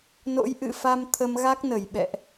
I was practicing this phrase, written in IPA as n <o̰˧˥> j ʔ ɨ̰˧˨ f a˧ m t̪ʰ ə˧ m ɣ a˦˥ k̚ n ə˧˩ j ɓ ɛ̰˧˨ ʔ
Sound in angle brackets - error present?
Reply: no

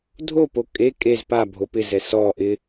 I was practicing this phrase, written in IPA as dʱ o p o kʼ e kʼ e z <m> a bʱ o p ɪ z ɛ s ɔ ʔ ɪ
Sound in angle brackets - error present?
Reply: yes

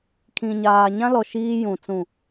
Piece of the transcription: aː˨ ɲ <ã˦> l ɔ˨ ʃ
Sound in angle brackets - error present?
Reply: no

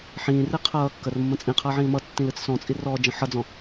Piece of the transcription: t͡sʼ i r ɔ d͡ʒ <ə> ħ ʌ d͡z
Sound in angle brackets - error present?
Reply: yes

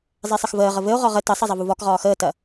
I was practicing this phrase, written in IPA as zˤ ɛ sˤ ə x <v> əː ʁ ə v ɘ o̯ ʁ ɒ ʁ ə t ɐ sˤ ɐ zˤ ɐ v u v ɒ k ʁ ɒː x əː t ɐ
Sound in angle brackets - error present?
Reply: no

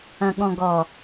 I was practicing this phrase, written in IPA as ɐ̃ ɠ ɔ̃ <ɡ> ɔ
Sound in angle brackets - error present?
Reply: no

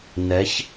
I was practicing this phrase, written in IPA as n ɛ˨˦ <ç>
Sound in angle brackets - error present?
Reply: no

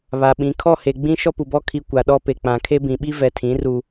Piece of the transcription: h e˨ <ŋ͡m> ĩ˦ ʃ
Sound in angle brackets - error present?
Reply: yes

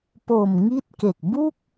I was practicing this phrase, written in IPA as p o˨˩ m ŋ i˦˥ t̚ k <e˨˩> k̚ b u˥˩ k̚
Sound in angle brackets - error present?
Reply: no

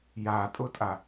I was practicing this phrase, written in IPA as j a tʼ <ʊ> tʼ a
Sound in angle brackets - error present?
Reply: no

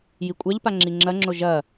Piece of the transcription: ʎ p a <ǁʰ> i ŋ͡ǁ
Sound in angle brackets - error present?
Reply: yes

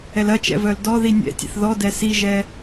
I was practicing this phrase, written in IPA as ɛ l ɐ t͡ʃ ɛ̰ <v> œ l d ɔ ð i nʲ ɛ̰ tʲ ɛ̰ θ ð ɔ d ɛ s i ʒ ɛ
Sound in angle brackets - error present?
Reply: no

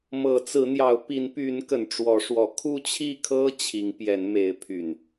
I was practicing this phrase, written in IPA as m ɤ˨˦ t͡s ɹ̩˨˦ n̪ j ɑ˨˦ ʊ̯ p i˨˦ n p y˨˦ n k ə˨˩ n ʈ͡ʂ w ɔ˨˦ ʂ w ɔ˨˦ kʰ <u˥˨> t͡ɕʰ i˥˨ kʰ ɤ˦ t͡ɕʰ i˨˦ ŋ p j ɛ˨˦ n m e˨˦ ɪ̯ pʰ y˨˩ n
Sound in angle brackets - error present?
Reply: no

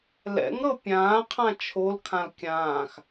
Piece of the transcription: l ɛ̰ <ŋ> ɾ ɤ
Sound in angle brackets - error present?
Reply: no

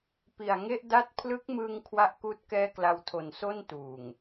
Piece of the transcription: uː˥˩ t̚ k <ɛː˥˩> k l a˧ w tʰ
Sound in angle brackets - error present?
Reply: no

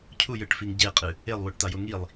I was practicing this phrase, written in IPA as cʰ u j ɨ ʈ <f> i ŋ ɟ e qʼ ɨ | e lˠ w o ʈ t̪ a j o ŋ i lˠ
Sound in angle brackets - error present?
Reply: no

